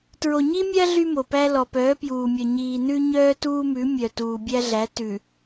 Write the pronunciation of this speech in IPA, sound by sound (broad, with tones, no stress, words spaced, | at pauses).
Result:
tɹo˨ɲi˦mʲæ˦ ɮy˦mo˨pæ˦ lɔ˨pœː˨˦pjuː˨mʲœ˨ ɲiː˨nʉ˦ ɲœː˦tuː˦mʉ˨˦ mʲœ˨ tuː˨bʲæ˦ɮæ˨˦ tʉ˨